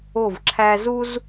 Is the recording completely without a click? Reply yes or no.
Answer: no